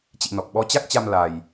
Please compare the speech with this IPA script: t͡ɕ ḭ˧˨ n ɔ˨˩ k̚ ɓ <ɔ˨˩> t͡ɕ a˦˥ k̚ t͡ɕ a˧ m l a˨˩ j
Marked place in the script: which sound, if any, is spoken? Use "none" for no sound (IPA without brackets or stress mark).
ɔ˨˦